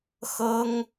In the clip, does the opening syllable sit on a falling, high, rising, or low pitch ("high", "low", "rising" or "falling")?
high